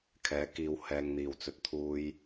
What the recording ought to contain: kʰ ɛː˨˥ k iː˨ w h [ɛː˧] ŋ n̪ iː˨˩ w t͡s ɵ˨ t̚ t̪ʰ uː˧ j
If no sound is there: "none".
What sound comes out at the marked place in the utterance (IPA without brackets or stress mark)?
ɛː˨